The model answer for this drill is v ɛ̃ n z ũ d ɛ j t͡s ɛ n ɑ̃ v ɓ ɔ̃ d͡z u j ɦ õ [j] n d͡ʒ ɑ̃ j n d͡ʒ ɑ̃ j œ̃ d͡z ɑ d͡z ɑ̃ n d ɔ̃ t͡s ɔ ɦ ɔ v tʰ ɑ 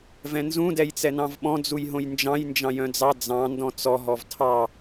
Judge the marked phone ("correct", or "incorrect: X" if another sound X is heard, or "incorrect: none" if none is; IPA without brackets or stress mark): correct